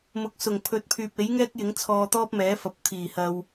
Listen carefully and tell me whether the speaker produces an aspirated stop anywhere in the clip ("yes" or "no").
yes